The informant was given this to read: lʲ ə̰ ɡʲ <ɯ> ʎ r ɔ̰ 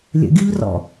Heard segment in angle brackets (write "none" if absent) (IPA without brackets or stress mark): ɯ